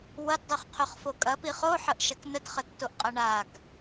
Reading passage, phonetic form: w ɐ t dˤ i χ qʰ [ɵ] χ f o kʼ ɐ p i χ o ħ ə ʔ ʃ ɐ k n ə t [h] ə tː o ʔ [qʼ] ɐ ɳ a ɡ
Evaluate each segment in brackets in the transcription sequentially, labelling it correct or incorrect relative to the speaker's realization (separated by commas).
correct, incorrect, correct